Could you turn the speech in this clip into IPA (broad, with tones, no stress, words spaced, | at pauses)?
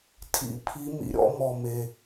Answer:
tʰḭ˧ pʰi˧˥mḭ˧ɾʲɔ̰˧˥ mɔ˧me˧